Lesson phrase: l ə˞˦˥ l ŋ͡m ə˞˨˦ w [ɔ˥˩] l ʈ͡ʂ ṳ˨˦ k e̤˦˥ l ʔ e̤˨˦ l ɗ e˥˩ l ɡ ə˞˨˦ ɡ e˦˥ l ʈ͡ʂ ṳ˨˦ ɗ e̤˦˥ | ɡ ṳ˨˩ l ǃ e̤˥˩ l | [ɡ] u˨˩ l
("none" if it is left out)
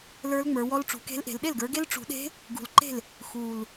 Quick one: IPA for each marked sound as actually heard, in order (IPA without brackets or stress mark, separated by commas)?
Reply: ɔ˦˥, x